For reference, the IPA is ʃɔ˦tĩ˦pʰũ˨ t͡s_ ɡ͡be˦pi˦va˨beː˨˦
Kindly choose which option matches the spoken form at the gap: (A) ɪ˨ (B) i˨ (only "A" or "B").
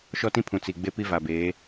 B